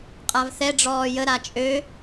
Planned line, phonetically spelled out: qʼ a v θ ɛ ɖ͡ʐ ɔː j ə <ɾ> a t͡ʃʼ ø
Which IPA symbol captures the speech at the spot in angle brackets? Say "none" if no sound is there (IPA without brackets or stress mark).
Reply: ɾ